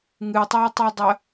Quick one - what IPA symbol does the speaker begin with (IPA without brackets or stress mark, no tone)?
ŋ